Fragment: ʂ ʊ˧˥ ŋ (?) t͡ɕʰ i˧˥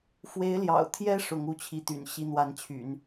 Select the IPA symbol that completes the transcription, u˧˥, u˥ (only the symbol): u˧˥